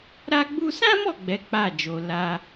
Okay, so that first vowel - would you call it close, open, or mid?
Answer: open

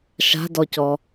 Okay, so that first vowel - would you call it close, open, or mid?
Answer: open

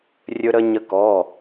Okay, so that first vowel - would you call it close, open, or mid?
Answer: mid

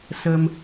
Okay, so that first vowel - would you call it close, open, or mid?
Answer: mid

